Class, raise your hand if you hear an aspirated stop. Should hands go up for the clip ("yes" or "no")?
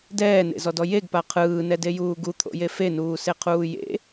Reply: yes